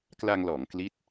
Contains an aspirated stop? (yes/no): no